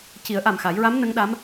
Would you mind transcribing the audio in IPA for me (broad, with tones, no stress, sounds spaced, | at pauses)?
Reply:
c i˨˩˦ ə̯ ʔ a˨˩ m x a˨˩˦ j ɹ a˧˥ m n ə˧˥ ŋ ɗ a˧˥ m